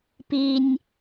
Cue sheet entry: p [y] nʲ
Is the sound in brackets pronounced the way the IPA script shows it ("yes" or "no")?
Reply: no